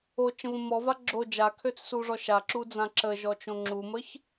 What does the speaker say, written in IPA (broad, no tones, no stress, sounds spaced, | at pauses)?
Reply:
o t͡ʃ ə̃ v ə̃ m ɔ v a ɡ͡ǁ o d͡ʒ a kʰ ø t͡s s u ʐ ɔ ʃ a ǁ u d͡z ã ǁ ə ʒ ɔ t͡ʃ õ ŋ͡ǁ u m ə ç